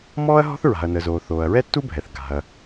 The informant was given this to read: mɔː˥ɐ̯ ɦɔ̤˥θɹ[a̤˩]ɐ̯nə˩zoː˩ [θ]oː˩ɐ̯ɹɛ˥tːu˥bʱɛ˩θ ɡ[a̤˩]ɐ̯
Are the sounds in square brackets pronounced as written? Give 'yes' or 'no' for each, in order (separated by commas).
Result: yes, yes, yes